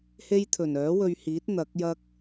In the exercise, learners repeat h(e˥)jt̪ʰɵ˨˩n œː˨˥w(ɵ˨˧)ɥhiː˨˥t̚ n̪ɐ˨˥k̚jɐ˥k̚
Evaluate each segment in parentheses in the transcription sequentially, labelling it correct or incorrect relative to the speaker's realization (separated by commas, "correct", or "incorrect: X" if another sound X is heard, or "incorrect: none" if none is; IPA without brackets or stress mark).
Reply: correct, incorrect: ɵ˧